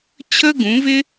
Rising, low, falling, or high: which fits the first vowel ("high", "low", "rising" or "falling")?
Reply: high